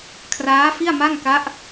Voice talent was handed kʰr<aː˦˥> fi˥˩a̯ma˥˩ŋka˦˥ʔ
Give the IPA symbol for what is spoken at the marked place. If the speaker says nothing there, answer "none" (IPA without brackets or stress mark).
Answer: aː˦˥